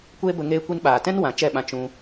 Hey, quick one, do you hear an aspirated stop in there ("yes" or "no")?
no